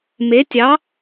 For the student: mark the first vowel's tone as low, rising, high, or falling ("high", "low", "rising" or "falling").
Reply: rising